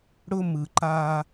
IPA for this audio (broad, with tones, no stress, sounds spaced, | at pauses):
ɽ ʊ˦ m ɯ˨ ǃ a˦